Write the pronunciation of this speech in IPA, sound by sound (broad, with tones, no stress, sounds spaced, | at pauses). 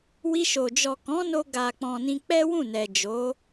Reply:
w i˧ ʃ o˨ d͡ʒ ɔ˨ k ɔ̃˨˦ n o˧ ɡ a˨ k͡p ɔ̃˨ n ĩ˧ k͡p ɛ˦ w ũ˦˨ n ɛ˨ d͡ʒ o˨˦